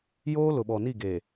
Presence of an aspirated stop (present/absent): absent